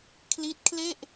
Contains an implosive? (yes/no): no